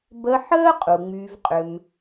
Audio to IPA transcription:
b ə˧ ħ əː˦ qʼ u˨ ŋ͡m yː˧ v qʼ ʏ˧ m

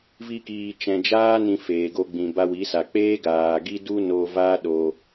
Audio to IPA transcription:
v i˧ k iː˨ t͡ʃ ɛ̃˨ d͡ʒ aː˦ n ĩ˧ f eː˨ ɡ o˧ ɡ͡b ĩ˨ b a˧ w i˨˦ s a˨ k͡p eː˦ ɡ aː˨ ɡ i˦ d u˦ n o˧ v a˦ ɗ o˧

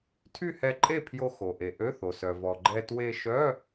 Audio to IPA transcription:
tʰ y˥˨ h ɛ˧ ǃʼ e˥˨ pʰ j o˧ x o˩ ʔ e˩ ʔ ø˧˥˧ θ o˩ s œ˩ v ɔ˩ ɡ͡ǃ ɛ˧ t w e˧ ʃ œ˧˥˧

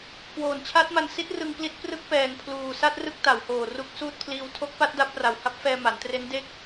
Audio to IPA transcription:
k w oː˨˩ n t͡ɕʰ a˦˥ t̚ m a˧ n s i˦˥ t̚ r ɯ˧ ŋ p l i˦˥ t̚ p r ɯ˦˥ k̚ p ɛː˨˩ ŋ pʰ l uː˨˩ s a˥˩ t̚ r ɯ˥˩ k̚ t a˩˦ w h oː˨˩ r u˦˥ k̚ s uː˥˩ t̚ pʰ l iː˧ w tʰ o˦˥ k̚ p a˦˥ t̚ d a˦˥ p̚ r a˨˩ w h a˦˥ p̚ f ɛː˧ m a˩˦ n t r e˦˥ n d e˥˩ k̚

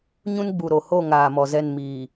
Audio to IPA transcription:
ɲ ũ˦ n ɡ͡b u˨ ɾ o˨ h o˦˨ ŋ aː˨ m ɔ˨ z ɛ˦˨ n m iː˨

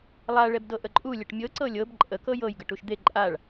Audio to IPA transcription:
lˠ a ɭ ɛ b d ɤ ʔ ə ǃʼ u lʲ ə ʈ mʲ ɤ ǀ ɤ lʲ ɤ b ǃʼ ə k ɤ j ɤ j ɡ ə ʈ u ʃ d̪ e ǃʼ a ɭ

